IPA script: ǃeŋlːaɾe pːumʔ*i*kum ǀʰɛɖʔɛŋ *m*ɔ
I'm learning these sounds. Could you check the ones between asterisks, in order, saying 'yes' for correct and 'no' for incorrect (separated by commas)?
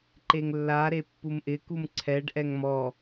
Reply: no, yes